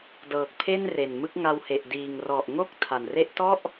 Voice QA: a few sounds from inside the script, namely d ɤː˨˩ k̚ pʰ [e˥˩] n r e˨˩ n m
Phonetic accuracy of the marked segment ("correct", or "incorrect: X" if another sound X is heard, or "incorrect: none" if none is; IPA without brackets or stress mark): correct